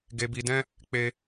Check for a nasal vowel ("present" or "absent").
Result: present